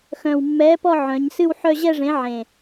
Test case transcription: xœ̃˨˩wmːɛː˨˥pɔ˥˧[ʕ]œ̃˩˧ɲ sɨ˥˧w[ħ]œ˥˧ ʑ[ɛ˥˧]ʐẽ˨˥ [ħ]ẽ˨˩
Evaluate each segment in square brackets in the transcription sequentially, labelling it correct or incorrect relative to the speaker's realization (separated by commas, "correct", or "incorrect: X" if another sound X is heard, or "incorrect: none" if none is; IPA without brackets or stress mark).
correct, correct, correct, incorrect: ʕ